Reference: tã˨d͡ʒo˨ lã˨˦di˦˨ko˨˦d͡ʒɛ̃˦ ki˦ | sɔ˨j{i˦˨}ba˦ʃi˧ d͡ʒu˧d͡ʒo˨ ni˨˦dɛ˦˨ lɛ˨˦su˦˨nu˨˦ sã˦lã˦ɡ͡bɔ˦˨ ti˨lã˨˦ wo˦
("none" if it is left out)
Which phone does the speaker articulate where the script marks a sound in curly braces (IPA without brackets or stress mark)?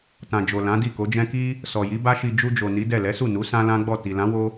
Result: i˨˦